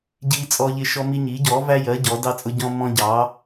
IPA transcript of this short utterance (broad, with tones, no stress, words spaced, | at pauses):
ɟiː˦t͡sʼɔ˦ʎɪ˦ ʃɔ˦mi˦ ɲiː˩˥ɟɔː˩˥væ˦jɜ˩˥ ɟɔː˩˥dɑ˦t͡sʼʊ˦ɟɔ̃˦ mɔ̃˦ɟɑ˩˥